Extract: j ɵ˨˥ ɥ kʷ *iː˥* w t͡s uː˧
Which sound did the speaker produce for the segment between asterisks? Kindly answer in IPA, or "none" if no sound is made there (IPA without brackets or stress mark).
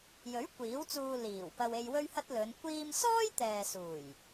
iː˨˥